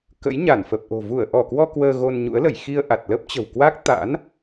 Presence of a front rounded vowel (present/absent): absent